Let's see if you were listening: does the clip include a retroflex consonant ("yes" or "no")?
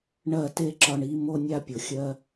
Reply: yes